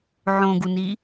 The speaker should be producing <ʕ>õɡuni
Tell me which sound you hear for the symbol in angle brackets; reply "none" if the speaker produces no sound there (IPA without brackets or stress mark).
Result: ʕ